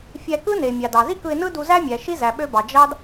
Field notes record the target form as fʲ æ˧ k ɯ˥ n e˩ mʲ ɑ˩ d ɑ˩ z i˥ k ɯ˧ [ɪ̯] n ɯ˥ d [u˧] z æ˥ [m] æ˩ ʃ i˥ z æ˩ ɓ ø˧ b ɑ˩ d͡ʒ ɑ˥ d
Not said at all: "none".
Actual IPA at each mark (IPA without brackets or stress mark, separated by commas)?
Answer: ɪ̯, u˧, mʲ